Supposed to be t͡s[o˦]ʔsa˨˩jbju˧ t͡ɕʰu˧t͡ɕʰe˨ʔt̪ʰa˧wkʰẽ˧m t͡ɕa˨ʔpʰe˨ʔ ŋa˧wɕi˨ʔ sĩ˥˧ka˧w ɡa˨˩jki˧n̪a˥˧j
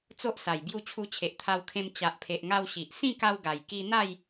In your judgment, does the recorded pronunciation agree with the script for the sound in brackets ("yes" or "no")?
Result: yes